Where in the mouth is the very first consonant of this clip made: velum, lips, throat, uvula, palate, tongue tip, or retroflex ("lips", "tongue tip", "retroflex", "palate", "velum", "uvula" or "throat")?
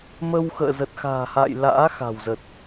lips